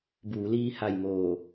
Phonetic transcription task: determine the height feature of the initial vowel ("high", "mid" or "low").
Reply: high